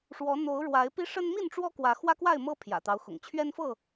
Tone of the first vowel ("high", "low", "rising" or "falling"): rising